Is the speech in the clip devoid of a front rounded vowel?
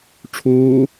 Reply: yes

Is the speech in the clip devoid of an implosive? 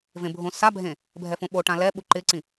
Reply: no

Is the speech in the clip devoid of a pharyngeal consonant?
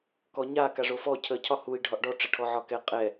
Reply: no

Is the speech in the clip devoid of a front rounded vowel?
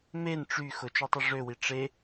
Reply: no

